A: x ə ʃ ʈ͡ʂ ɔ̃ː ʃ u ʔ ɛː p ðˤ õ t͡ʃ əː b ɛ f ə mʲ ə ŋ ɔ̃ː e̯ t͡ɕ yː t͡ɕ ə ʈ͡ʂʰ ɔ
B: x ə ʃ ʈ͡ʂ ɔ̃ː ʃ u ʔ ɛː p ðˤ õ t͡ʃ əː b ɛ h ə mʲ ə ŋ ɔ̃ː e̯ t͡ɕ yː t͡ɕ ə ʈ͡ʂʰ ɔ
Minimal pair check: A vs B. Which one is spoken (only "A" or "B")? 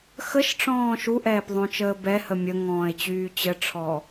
B